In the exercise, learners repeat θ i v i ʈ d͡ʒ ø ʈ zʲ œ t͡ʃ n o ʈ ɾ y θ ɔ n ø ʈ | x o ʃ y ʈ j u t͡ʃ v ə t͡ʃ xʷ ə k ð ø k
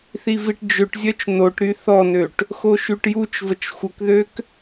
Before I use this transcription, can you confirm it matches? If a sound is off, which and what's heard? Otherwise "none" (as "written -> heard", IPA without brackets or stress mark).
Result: none